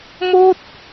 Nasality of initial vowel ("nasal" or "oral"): oral